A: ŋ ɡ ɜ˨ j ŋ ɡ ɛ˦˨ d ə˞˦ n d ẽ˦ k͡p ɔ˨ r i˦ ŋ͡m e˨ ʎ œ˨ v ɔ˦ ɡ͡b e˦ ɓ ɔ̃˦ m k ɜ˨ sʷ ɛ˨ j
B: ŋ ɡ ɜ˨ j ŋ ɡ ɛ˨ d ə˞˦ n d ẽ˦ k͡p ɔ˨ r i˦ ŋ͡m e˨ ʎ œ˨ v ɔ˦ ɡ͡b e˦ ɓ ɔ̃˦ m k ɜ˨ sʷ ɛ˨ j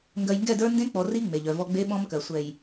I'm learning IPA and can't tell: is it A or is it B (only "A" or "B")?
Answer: A